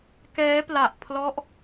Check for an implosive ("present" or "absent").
absent